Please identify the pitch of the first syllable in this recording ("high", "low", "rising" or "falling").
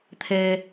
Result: low